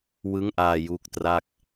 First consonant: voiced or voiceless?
voiced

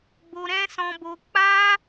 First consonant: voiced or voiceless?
voiced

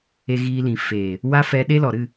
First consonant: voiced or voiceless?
voiced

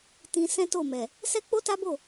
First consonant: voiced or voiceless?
voiceless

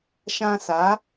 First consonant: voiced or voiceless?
voiceless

